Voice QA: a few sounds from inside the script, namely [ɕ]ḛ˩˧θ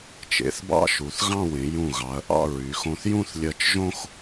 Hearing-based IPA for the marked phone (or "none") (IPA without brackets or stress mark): t͡ʃ